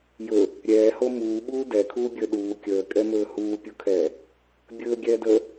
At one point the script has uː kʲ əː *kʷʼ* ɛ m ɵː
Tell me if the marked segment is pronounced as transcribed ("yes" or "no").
no